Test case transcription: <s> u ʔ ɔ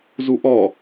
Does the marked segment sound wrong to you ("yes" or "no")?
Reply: yes